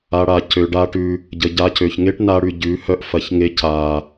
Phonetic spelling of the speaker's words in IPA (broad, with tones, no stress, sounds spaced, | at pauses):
a˧ ɽ a˨ c ø˧ ɖ a˦ ʈ ʉ˧ | ɟ ə˧ ɟ a˦ c ø˧ ç ŋ e˦ ʈ n a˧ ɽ ʉ˨ ɟ ʉ˨˦ h œ˧ ʔ f ɐ˨˦ ç ŋ e˧ c a˨